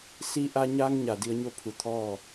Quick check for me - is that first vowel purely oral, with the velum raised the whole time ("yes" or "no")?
yes